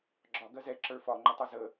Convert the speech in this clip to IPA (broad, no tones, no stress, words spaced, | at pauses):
ɡ͡ǁɒ ɡɜzɛ ǁə˞fɒ ŋ͡ǃətˤʌzə